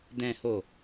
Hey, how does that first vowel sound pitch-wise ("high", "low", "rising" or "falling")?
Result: low